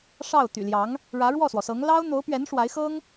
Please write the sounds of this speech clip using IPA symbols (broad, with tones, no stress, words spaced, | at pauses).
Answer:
ʂɑ˥˩ʊ̯ t̪y̰˨˩ljɑ˧˥ŋ | ɻä˧˥ɻwɔ˥˩swɔ˩sɤ˧˥ŋ lɑ˥ʊ̯ n̪o˧˥ʊ̯pɥɛ˧˥n ʂwa˧˥ɪ̯xɤ˥ŋ